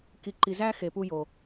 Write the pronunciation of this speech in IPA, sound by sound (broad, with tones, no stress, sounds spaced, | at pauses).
k i˨ ǃ i˨ z æ˦ x e˨ p u˧ j o˨